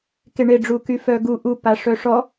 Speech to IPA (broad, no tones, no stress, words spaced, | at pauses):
keɳeɖ͡ʐuky fœɡu ʔu paʂœʂɔ